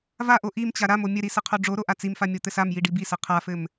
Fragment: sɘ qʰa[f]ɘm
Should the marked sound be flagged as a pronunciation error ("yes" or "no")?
no